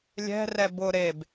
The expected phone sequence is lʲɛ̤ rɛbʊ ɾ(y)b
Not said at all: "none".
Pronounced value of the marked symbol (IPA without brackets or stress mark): e